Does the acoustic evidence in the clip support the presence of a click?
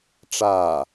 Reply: no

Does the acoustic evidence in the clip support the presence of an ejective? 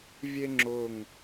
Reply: no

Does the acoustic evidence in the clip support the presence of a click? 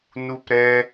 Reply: no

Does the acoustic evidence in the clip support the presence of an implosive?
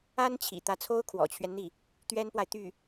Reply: no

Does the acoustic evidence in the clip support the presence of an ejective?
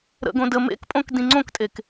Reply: yes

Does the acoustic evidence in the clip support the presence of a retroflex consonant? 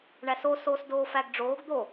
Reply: yes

